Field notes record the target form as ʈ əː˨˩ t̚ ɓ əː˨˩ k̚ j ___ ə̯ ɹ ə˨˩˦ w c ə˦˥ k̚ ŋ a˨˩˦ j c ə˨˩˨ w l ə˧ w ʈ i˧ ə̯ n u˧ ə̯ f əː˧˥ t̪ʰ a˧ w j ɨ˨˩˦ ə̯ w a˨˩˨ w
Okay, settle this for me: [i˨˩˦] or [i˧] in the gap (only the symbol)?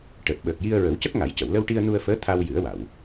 i˧